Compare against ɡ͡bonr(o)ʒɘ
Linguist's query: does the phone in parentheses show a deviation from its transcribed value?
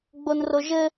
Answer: no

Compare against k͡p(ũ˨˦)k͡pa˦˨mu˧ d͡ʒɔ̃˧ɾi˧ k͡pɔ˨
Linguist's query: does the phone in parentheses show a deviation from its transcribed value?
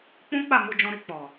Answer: yes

